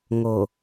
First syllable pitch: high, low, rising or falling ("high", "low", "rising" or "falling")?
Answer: low